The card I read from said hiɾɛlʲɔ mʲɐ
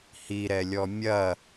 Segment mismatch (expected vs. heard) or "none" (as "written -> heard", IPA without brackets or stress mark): none